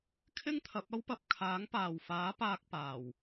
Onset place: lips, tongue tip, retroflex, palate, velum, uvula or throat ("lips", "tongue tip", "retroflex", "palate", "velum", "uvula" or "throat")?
velum